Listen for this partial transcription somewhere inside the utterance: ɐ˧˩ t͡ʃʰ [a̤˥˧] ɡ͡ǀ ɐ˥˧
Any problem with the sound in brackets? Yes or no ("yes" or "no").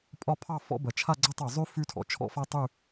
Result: yes